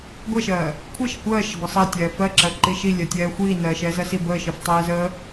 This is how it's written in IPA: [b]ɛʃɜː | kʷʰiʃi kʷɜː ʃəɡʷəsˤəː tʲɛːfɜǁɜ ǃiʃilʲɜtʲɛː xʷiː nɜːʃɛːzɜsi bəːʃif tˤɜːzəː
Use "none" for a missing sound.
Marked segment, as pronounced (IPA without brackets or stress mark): ɡʷ